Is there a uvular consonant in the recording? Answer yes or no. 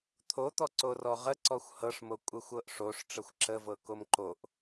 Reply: yes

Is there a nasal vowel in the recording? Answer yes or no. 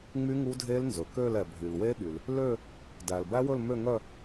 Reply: no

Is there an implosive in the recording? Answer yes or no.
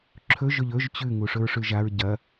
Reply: no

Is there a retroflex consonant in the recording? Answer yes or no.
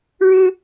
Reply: yes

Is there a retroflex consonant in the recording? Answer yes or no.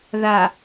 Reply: no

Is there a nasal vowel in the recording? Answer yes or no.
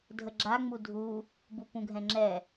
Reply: yes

